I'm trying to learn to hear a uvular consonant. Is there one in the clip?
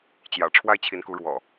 no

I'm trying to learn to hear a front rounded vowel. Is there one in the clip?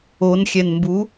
no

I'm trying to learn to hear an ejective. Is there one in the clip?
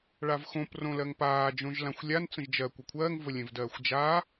no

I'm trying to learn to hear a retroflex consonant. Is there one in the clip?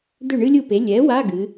yes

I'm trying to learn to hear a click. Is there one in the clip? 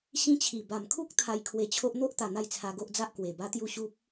no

